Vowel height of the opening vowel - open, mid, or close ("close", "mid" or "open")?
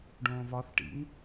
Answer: mid